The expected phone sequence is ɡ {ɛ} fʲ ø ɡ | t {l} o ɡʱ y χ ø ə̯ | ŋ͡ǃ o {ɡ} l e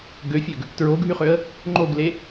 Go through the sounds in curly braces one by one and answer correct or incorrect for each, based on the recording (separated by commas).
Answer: incorrect, incorrect, correct